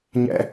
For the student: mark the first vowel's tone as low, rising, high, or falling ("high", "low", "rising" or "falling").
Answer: high